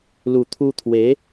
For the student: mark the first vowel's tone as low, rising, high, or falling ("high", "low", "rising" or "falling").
low